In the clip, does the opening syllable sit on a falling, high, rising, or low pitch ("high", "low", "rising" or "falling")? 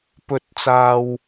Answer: rising